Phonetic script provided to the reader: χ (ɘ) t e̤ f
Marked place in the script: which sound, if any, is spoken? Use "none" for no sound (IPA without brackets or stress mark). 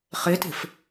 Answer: e